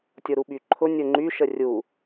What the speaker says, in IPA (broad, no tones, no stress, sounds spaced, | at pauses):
tʲ o ɾ u ɓ y ǃʰ ʊ nʲ ʊ ŋ͡ǃ y ʃ ə rʲ u